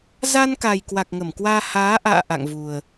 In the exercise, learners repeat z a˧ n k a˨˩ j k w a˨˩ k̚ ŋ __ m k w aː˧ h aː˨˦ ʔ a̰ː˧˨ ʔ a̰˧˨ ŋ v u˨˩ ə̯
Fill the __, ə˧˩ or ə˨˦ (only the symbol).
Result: ə˧˩